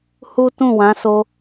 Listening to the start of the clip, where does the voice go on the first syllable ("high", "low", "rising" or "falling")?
high